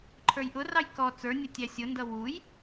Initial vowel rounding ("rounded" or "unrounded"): unrounded